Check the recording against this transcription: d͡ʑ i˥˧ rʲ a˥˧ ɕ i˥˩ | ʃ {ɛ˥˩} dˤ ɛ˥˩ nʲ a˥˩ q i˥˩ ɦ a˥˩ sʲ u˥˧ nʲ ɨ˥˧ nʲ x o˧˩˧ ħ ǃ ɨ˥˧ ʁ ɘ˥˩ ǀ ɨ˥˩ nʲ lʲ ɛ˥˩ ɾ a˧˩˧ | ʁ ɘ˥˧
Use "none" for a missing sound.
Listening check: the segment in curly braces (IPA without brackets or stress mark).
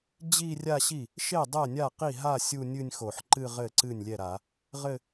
e˥˩